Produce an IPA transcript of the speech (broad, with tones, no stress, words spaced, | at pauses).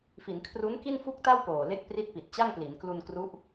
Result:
fi˩˦nkʰru˦˥nki˥˩n fu˥˩k̚ta˥˩wpoː˨˩le˦˥k̚ pri˦˥t̚pi˨˩t̚t͡ɕa˥˩ŋpli˩˦n klu˧nkru˦˥ʔ